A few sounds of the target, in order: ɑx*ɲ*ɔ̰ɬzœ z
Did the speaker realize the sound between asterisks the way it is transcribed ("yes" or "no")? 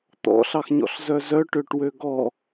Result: yes